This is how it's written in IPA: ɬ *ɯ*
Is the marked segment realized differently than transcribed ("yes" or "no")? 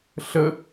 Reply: yes